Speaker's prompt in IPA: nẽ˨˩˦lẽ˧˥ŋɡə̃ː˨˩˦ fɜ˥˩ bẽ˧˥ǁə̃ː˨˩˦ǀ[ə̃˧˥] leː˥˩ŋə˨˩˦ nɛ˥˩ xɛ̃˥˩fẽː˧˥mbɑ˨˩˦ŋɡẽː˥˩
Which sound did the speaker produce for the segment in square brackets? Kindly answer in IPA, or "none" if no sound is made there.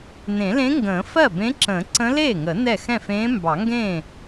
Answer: ə̃˧˥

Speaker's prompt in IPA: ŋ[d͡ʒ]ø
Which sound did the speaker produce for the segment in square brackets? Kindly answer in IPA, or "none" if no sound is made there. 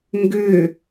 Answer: ɡ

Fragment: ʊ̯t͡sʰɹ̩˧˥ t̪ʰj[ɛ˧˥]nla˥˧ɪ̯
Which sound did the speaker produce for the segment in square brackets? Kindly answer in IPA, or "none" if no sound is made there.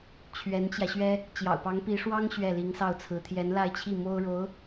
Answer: ɛ˧˥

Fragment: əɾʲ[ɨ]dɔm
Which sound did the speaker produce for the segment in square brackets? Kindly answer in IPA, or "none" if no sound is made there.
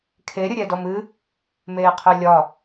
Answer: ɛ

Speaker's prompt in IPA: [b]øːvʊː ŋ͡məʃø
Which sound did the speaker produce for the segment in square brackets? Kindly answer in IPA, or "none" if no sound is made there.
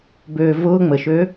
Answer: b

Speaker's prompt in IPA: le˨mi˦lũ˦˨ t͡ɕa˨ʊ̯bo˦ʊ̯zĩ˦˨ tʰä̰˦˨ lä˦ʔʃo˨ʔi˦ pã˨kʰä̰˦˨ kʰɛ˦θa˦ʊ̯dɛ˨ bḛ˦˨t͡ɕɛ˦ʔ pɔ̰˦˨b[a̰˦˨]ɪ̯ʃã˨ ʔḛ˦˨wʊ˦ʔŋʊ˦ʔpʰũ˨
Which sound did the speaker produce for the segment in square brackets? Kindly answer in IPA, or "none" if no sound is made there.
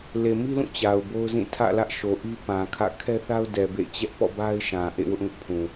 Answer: a˦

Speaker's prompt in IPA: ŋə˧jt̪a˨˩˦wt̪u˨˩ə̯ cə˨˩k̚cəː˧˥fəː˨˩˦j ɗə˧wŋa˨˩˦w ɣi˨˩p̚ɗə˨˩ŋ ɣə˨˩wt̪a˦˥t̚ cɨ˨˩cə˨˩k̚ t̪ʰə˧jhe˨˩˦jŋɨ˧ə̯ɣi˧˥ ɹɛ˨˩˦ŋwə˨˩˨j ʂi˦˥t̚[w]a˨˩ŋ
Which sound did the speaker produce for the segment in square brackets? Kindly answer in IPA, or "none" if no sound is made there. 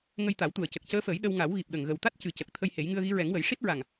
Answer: ɹ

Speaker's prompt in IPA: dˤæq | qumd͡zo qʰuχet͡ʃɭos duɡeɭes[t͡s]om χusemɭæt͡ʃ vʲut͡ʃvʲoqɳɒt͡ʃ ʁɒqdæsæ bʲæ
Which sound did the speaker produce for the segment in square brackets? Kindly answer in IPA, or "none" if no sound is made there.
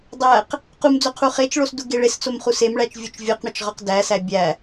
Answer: t͡s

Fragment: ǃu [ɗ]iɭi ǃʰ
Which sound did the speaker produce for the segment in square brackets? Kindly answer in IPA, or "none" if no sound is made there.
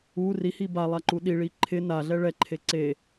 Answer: ɗ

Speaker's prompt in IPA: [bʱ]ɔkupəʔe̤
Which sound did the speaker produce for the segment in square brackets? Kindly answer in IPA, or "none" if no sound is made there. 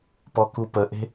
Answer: p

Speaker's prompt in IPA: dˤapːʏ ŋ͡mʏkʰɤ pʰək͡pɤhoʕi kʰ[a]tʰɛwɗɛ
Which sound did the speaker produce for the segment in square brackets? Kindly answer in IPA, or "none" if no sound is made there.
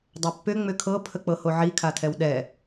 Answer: a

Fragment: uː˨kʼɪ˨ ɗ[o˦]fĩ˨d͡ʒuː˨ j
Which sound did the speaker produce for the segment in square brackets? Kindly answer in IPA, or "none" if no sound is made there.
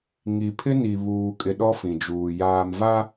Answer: ɔ˦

